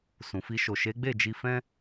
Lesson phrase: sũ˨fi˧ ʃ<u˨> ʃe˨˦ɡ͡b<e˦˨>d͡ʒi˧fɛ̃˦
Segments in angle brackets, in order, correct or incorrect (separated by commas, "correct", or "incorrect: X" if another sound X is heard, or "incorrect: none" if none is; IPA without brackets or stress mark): incorrect: o˨, correct